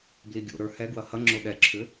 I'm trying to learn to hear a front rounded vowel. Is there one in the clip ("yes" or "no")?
yes